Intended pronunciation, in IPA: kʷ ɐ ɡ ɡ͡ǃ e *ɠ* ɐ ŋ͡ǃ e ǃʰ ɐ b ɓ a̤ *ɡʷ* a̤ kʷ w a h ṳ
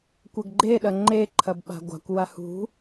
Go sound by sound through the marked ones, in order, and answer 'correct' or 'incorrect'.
incorrect, correct

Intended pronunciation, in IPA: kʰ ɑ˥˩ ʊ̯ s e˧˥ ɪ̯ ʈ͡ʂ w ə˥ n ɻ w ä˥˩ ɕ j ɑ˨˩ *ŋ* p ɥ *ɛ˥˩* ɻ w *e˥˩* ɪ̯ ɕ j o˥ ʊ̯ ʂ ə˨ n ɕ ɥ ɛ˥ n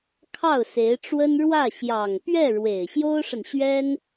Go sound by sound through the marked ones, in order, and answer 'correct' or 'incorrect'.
correct, correct, incorrect

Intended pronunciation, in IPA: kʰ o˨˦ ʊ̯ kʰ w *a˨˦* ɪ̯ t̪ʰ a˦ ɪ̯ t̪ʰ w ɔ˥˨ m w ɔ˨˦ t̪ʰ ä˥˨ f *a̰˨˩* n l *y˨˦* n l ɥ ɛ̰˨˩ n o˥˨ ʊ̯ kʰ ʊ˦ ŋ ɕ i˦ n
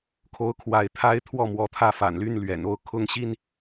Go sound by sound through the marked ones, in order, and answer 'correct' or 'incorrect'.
correct, correct, incorrect

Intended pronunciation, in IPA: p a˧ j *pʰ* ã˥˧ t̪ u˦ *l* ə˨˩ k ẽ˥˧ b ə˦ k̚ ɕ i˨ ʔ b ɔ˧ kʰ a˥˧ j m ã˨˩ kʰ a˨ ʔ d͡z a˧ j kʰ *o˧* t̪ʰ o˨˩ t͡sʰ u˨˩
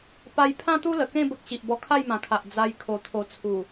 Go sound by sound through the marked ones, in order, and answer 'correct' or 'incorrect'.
correct, correct, incorrect

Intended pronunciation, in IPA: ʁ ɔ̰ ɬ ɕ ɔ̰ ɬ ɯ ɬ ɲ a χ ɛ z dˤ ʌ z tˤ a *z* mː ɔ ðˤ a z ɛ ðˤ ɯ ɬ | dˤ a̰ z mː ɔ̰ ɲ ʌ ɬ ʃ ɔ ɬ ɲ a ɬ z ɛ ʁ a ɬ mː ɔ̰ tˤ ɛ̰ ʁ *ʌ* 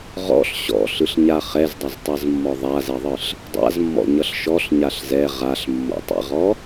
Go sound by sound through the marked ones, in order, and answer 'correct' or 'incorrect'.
correct, incorrect

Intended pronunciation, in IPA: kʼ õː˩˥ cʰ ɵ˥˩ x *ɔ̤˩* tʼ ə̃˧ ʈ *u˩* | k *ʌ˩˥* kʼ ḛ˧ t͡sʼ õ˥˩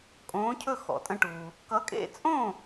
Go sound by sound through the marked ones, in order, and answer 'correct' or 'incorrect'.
incorrect, correct, correct

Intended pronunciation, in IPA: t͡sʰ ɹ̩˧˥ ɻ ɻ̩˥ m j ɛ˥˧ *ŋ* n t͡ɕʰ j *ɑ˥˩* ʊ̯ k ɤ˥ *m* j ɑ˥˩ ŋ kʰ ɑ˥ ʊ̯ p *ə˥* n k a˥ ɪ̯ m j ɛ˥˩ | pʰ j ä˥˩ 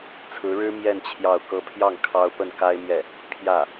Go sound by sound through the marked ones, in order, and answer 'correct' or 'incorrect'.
incorrect, correct, incorrect, incorrect

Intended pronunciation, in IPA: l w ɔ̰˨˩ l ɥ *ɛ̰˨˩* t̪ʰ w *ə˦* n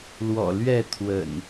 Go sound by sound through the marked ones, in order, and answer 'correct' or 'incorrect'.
incorrect, incorrect

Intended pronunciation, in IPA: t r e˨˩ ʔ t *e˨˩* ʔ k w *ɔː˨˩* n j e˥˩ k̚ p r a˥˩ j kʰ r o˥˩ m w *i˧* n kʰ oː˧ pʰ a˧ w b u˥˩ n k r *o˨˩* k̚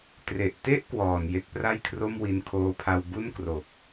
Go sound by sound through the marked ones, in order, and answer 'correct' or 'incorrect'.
incorrect, correct, correct, correct

